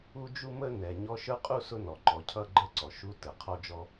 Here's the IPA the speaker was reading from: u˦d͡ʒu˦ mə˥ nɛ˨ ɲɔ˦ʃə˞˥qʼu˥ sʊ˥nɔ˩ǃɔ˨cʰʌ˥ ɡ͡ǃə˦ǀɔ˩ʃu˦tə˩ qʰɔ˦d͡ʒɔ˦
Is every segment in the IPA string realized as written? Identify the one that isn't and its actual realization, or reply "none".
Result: none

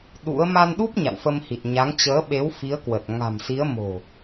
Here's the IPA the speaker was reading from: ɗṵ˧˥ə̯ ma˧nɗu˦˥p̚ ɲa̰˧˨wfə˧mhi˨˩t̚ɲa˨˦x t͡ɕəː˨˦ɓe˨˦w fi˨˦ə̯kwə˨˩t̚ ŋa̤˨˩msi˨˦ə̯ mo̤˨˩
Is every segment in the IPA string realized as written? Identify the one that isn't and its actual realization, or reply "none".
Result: x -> ŋ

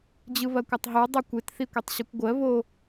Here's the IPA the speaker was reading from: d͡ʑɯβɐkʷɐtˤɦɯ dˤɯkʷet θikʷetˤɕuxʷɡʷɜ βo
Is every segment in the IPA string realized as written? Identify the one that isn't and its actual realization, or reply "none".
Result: xʷ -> kʷ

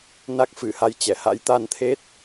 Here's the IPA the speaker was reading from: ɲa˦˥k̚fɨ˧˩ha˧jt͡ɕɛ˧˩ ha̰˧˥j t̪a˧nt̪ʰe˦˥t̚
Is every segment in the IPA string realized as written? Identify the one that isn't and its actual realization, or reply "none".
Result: ɲ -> n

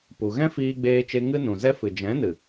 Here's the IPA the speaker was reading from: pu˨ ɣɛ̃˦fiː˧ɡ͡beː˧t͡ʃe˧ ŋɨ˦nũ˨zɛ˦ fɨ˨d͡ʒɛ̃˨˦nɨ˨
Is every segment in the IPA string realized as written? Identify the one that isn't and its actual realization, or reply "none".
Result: none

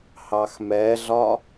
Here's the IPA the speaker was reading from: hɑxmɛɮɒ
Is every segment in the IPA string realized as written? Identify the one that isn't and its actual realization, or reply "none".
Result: none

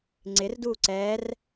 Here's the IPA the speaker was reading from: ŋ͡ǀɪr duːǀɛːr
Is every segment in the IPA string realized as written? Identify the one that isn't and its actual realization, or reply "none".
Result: none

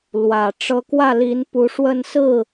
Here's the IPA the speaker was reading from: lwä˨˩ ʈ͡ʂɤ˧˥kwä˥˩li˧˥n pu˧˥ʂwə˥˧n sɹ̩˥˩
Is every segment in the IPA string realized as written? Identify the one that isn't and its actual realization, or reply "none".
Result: none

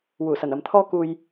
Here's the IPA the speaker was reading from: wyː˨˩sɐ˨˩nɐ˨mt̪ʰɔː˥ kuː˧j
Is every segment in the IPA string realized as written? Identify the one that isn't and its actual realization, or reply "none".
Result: yː˨˩ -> uː˨˩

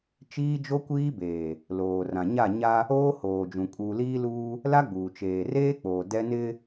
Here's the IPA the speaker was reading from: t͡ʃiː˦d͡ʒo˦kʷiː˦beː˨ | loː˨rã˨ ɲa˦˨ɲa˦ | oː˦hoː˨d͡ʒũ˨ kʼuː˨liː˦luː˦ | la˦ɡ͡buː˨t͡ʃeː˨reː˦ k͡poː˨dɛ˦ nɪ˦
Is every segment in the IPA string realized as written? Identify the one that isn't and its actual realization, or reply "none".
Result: none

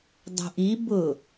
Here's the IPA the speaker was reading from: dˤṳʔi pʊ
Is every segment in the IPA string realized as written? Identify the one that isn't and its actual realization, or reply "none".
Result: p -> b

